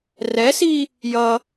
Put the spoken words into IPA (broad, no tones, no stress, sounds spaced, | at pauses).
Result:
r ɛ s i | j ʌ